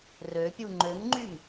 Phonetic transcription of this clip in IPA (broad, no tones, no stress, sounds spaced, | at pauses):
r ø pʲ u ŋ͡ǃ ø ŋ ŋ͡ǃ y m